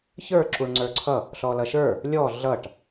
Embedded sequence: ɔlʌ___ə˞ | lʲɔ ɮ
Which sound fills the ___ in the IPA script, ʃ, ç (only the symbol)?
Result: ʃ